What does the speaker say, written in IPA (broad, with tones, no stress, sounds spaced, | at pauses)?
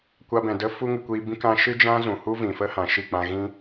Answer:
kʷ a˧ b ɛ̃˨ d ə˦ f u˦ ŋ ɨ˨ kʷ iː˧ b ĩ˦ k ã˦ ʃ ɨ˦ d͡ʒ ã˦ z ũ˨ h u˦ v ĩ˨ f ə˦ h ã˨ ʃ i˦˨ k͡p ã˧ ɣ ĩ˦